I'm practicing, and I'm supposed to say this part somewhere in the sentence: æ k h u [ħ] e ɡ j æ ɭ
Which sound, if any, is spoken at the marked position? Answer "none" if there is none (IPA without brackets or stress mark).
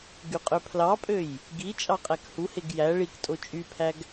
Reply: h